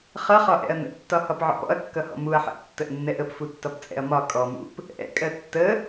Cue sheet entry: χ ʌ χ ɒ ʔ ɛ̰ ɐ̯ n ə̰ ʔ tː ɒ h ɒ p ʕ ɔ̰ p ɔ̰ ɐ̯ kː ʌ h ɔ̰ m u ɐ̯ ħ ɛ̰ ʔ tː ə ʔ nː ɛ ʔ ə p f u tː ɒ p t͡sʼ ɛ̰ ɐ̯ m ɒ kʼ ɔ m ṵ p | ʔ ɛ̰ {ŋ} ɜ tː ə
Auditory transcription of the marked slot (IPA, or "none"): kʼ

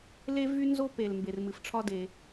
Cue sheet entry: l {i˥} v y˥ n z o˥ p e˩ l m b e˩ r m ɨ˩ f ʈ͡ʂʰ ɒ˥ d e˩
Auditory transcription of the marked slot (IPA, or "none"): e˥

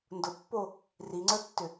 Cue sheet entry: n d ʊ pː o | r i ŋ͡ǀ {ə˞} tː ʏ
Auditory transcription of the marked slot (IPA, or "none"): ə˞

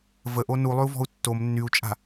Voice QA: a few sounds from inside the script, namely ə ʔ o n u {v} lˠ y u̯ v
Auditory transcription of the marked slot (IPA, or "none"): none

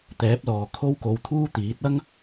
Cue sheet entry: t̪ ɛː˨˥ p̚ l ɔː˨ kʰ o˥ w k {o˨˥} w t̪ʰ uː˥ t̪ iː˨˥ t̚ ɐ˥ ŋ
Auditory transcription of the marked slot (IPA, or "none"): o˧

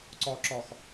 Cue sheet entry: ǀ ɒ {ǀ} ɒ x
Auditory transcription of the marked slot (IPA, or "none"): ǁ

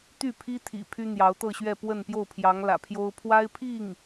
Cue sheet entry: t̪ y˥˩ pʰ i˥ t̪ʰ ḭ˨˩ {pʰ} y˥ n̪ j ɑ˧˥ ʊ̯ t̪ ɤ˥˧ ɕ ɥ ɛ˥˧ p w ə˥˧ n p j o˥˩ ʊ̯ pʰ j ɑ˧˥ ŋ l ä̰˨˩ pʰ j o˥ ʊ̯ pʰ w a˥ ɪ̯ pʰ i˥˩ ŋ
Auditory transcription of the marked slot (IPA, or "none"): pʰ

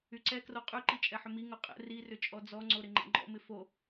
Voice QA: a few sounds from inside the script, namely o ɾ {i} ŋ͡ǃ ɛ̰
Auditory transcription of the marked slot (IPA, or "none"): ɪ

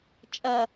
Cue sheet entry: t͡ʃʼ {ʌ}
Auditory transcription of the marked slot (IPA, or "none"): ʌ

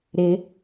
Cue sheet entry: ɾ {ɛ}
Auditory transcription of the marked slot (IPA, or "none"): ɪ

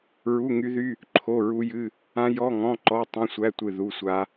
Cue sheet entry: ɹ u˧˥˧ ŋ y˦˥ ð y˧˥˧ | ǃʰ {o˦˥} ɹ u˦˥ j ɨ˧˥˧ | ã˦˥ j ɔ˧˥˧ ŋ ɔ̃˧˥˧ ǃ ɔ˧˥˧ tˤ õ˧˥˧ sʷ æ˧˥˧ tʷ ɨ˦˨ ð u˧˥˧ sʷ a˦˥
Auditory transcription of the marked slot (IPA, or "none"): o˧˥˧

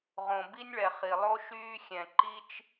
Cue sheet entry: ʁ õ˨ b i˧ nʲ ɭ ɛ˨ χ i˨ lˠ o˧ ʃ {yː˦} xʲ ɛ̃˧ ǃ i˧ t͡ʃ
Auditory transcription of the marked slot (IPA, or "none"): yː˦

